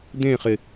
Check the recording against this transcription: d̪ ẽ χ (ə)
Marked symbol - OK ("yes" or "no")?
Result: no